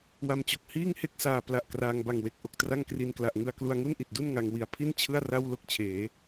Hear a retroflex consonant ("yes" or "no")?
no